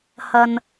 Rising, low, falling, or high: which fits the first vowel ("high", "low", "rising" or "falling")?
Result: low